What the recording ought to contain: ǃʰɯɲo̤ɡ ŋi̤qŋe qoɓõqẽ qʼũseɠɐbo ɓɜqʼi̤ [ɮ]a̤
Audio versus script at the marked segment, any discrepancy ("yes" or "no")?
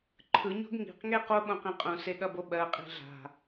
no